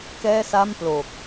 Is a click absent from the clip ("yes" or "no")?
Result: yes